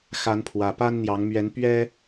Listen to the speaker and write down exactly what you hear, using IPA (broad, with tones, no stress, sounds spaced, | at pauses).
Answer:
x a˨˦ n pʰ w ä˨˩ p a˦ n n̪ j ɑ˨˦ ŋ m ɥ ɛ˨˦ n p ɥ ɛ˦